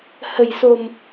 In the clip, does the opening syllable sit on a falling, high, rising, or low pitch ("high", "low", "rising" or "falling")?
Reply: low